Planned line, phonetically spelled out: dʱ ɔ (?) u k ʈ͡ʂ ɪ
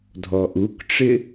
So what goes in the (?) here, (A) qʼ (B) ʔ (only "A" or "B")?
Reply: B